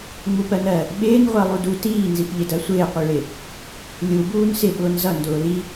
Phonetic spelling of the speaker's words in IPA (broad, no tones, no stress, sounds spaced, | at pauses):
ŋ͡m u p ɜ n ɜ | ɓ ɪː n ʁʷ ɜ lˠ u d u t iː n z i p ʎ ɪ d ɜ sʷ ɪː qʷ i ɭ ɪ | lʲ u b uː n s ɪ ɓ ʊː n z ʌ n d ʊː l i